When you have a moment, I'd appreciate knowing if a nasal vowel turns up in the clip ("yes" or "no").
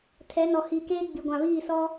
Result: yes